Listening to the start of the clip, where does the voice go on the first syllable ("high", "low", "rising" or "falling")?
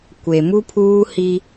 low